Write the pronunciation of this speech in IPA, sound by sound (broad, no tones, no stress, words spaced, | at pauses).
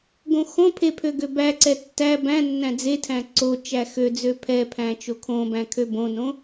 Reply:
ɡõxõpʰe pʰøɡøbæǀɛ tːæ bæ̃nːæ̃ d͡zetʰæ̃ ǀo t͡ʃæxød͡zø pʰɛpʰæ̃ t͡ʃokʰõbæ̃ kʰøbõnõ